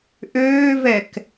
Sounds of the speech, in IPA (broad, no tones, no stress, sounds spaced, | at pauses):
ʔ øː v ɛ k